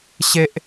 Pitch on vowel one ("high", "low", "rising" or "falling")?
high